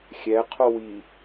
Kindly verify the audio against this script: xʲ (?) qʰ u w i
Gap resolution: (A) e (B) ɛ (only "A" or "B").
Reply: B